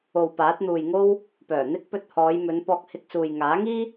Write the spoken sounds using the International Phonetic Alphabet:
o˨ w p aː˨˥ t̚ n̪ uː˨ j ŋ o˥ w | p œː˨˩ n̪ ɪ˧ k̚ p ɵ˨ t̚ h ɔː˨˧ j m ɵ˨˧ n p ɔː˧ k̚ h ɪ˧ k̚ s uː˨ j ŋ aː˨˥ ŋ iː˥

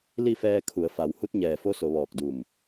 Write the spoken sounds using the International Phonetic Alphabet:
l i˥˨ f ɛː˧ kʰ u˩˧ ə̯ f a˩˧ w h u˧˥ t̚ ɲ ɛː˧˩ f o˧˥ s o˩˧ ʋ ɔː˧˩ k̚ d u˧˩ m

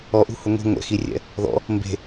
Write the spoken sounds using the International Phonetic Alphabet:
ɔ ʔ ṳ h ʊ ŋʷ i̤ ŋʷ ɛ̰ x i rʲ ɛ̰ | ð ɔ̰ | m b e̤

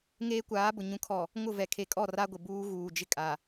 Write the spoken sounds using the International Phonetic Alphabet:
ŋ eː˦ kʷ aː˨˦ b ʊ˨ ɲ ũ˨ kʰ ɔ˨ | ŋ ʊ˦˨ v ɛ˨ kʰ e˨ kʼ ɔ˦˨ r a˦ ɡʷ ɪ˨ b uː˦ ɣ uː˨ d͡ʒ ɪ˦ kʼ a˨

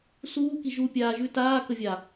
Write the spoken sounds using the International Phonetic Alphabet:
s uː k i ʒ u pʲ aː ʒ ʉ t aː k ə vʲ a

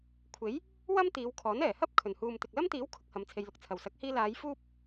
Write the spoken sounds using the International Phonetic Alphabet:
kʷʰ e˨˥ j | w ɐ˥ m t̪ iː˨˧ w kʰ ɔː˨˥ n ɛː˨˩ h ɐ˥ p̚ kʰ ɵ˨˩ n h uː˨ m t̪ ɪ˨ k̚ l ɐ˥ m t̪ iː˨˥ w kʰ ʊ˨˥ k̚ h ɐ˨˧ m t͡sʰ e˧ j l ʊ˧ k̚ t͡sʰ ɐ˨˩ w s ɐ˨˥ k̚ h iː˧ l aː˨˧ j f uː˥ p̚

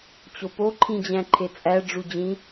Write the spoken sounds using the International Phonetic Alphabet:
t͡ɕ o p o ǃʰ ĩ d͡ʑ æ̃ ǃʰ e t͡sʼ æ ɖ͡ʐ u d͡ʑ ĩ

